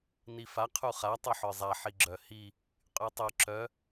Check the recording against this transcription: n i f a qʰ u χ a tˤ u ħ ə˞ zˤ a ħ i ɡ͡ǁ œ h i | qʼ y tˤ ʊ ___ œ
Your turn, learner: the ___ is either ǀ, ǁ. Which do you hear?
ǁ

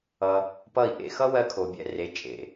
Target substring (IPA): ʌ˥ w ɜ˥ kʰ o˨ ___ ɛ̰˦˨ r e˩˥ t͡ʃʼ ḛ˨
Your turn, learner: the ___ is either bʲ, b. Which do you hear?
bʲ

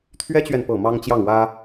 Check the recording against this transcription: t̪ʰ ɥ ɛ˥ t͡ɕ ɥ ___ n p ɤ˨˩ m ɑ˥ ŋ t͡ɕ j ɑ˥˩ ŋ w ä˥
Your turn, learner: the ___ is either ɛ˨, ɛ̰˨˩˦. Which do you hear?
ɛ˨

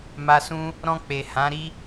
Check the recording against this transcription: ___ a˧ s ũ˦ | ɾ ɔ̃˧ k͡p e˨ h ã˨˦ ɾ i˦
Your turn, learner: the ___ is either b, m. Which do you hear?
m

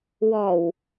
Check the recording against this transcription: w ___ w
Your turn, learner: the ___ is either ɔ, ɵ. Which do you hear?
ɔ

